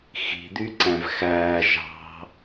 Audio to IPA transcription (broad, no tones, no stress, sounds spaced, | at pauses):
x i̤ d̪ y ǀ æ̃ v x æː ʒ ɑ̤